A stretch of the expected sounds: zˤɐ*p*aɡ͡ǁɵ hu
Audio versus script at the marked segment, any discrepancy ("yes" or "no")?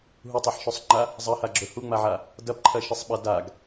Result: yes